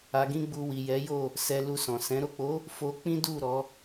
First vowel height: low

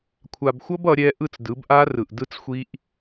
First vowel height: low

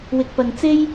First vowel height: high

